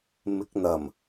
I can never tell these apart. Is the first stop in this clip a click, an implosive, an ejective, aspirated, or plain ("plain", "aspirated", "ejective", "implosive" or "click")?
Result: plain